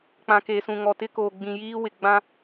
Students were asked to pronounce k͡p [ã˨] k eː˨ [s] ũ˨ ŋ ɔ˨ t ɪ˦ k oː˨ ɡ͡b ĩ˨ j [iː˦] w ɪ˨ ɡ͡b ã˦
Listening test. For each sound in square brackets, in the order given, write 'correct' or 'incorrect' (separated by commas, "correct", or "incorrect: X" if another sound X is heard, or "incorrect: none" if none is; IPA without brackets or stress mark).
correct, correct, correct